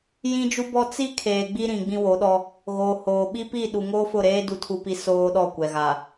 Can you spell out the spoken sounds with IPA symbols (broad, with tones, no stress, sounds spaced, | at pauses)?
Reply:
j ĩ˦ d͡ʒ u˦ b ɔ˦ t͡s i˦ kʰ eː˨ ɡ͡b i˦ ɾ ĩ˨ ɡ͡b ĩ˦ w o˨˦ ɗ ɔ˦ | ɣ oː˨ h oː˨ ɓ i˦ p i˦˨ ɗ u˨ ŋ oː˦ f ʊ˦˨ ɾ eː˦ d u˨ tʰ u˨ p i˨ s oː˦ ɗ ɔ˦˨ kʷ ɛ˨ ɣ a˨